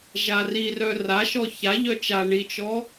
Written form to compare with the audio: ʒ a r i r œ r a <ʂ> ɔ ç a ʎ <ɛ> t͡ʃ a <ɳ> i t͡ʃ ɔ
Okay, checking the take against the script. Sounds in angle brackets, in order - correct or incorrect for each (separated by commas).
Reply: incorrect, incorrect, correct